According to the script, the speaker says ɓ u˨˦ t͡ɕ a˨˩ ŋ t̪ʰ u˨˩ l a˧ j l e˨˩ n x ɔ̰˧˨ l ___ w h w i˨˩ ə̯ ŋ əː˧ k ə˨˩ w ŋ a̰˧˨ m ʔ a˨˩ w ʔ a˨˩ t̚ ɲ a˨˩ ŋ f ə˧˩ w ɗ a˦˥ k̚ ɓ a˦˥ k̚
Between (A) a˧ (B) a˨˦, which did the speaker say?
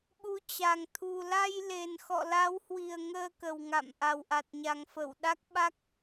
B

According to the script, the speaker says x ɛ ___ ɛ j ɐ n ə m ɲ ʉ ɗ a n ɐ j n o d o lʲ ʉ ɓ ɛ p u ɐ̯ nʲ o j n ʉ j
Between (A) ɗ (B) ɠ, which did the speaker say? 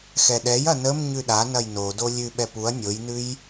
A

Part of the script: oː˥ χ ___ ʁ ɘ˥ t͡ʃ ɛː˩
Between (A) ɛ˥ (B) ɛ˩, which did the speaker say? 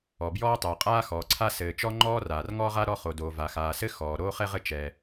A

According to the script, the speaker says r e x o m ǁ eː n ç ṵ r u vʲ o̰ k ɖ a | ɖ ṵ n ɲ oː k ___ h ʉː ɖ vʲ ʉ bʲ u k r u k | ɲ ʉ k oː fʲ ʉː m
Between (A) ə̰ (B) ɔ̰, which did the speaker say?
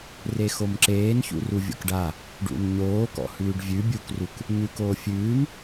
B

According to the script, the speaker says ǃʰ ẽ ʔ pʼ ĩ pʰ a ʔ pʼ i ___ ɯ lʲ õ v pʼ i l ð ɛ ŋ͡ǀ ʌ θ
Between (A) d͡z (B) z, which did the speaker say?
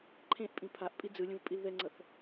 A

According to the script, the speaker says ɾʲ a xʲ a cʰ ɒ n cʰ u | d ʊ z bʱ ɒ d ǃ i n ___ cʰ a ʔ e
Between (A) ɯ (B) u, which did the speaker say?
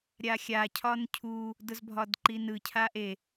A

